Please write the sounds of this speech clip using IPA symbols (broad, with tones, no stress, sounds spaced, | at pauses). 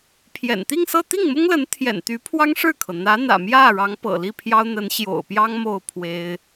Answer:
pʰ j ɛ̰˨˩ n t̪ i˥˧ ŋ s ɤ˥˧ t̪ i˥˩ ŋ m ʊ˥ ŋ l ə˧˥ n t̪ʰ j ɛ̰˨˩ n t̪ y˧˥ pʰ w ɑ˥ ŋ ʂ ɻ̩˥˩ kʰ ɤ˩ n̪ ä˧˥ n̪ ä̰˨˩ m j ä˥˩ ɻ ɑ˧˥ ŋ p ɤ̰˨˩ l i˥˩ pʰ j ɑ˥ ʊ̯ n̪ ə˧˥ n ɕ j o̰˨˩ ʊ̯ p j ɑ˥ ŋ m o˥˩ ʊ̯ pʰ w e˥ ɪ̯